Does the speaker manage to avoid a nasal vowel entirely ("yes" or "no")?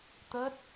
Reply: yes